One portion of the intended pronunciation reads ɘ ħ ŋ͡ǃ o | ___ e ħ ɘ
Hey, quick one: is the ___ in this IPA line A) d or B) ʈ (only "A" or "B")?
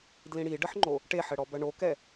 B